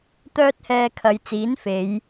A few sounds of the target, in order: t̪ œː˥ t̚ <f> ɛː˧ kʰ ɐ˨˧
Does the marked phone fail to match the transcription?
yes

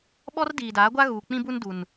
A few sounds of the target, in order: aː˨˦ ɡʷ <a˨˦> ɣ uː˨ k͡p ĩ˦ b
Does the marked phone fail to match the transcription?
yes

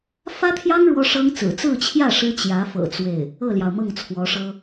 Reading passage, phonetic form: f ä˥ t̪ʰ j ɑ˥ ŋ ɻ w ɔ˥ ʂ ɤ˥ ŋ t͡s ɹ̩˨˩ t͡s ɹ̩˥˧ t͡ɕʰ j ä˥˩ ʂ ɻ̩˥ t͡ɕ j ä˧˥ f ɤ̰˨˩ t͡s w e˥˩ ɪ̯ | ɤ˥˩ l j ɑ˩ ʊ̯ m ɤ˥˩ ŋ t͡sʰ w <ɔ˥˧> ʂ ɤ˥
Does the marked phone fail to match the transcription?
yes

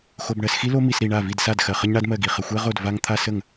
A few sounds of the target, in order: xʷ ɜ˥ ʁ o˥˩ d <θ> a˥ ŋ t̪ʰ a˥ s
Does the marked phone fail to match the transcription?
yes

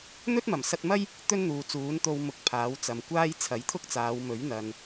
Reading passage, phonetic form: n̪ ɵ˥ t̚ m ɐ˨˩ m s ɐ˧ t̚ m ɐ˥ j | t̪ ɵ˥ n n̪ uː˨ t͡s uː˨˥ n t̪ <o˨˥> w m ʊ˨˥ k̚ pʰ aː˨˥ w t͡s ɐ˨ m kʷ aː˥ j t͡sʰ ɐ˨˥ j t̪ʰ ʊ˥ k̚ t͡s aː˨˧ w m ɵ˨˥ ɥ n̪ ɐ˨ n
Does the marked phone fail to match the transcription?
yes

